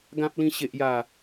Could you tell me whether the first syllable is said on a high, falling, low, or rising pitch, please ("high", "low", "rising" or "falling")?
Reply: high